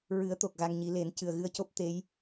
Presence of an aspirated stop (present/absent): absent